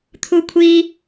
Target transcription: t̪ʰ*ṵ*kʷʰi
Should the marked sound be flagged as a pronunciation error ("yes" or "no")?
yes